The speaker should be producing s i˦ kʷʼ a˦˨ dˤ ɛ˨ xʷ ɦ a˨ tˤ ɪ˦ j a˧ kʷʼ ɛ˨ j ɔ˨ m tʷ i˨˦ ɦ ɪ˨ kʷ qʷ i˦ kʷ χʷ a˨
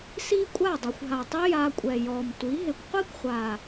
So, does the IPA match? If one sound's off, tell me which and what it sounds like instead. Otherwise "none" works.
none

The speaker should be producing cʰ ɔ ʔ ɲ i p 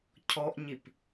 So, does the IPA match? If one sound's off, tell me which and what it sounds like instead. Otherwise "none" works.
none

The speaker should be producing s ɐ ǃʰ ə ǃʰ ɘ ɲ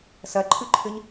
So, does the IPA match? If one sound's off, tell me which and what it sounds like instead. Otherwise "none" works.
ə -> ʉ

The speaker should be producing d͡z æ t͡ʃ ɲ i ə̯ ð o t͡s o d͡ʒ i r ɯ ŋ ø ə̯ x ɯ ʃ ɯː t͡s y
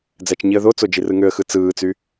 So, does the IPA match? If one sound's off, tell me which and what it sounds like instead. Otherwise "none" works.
ʃ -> t͡s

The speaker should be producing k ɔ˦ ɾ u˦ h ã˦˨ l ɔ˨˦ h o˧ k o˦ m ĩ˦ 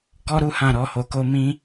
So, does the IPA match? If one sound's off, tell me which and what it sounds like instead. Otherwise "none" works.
l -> ɾ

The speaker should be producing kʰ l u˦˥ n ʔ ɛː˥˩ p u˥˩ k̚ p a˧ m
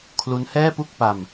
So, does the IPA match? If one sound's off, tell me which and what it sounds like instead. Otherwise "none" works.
ʔ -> h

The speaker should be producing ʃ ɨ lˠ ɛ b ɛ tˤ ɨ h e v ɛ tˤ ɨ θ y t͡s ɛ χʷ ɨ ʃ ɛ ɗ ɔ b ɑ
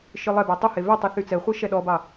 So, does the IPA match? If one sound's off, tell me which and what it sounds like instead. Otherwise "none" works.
none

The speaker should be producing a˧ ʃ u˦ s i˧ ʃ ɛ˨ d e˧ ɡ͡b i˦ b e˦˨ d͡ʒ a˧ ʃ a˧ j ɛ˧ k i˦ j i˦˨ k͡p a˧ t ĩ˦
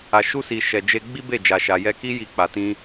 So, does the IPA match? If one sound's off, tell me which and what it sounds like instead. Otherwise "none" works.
d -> d͡ʒ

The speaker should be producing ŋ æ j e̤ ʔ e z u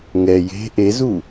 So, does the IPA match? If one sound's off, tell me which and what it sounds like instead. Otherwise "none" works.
æ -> ɛ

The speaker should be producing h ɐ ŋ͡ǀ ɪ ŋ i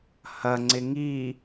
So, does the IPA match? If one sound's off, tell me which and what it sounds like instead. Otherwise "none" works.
none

